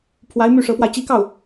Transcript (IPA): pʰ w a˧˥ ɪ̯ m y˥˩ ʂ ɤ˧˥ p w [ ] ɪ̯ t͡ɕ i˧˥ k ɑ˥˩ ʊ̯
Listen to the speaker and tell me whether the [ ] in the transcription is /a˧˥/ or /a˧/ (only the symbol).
a˧